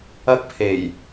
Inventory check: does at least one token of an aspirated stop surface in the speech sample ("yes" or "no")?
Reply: yes